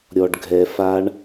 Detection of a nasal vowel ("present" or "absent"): absent